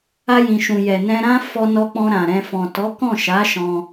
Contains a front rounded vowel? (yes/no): no